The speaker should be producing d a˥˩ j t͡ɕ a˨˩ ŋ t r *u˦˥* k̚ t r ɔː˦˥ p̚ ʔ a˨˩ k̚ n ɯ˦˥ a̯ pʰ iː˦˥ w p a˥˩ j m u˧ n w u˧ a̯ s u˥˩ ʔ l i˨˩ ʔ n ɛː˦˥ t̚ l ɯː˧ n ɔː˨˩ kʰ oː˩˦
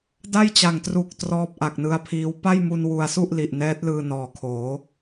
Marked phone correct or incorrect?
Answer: incorrect